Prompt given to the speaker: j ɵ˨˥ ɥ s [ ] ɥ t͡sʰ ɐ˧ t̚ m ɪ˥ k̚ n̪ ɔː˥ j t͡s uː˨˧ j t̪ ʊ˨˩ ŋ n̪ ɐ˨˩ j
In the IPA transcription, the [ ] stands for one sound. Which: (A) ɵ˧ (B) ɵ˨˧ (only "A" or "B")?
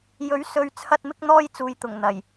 B